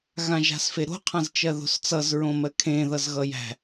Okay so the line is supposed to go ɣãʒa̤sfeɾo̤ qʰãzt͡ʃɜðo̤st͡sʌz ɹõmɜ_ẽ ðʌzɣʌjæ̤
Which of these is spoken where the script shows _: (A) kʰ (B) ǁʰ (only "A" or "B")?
A